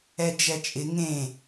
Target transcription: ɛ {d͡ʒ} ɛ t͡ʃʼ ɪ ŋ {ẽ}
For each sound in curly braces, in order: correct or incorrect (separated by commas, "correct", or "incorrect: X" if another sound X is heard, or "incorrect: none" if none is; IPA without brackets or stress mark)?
correct, correct